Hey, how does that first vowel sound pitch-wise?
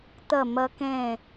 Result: falling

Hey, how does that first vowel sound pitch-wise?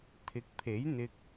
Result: rising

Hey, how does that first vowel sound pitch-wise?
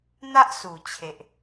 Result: high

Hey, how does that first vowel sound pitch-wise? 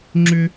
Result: high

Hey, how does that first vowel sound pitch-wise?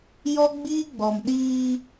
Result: high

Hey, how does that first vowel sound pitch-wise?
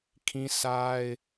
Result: high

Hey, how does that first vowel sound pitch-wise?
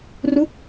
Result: falling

